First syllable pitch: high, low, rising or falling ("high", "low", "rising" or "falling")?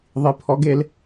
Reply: rising